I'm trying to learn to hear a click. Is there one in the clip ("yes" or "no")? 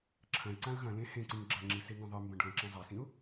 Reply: yes